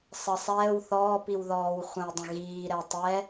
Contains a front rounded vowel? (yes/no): no